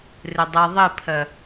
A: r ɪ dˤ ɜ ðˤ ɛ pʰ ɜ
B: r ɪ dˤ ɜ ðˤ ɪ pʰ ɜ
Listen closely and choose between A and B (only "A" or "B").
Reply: B